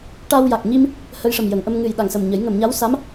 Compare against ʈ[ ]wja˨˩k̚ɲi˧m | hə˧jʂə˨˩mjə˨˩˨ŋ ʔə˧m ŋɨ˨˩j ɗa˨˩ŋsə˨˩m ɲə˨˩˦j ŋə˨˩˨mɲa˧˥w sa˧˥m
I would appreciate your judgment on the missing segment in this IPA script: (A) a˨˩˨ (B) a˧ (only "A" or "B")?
B